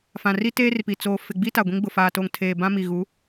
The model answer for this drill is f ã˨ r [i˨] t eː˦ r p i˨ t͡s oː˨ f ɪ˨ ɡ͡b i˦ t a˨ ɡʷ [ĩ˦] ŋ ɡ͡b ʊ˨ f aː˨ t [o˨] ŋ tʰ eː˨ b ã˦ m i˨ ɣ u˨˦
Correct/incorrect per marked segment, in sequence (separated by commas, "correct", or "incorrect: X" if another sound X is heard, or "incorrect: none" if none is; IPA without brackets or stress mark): incorrect: i˦, correct, correct